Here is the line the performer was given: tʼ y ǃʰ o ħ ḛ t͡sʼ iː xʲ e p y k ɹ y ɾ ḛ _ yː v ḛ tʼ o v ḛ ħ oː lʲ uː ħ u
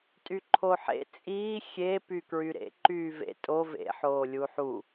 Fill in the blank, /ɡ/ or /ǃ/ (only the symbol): ǃ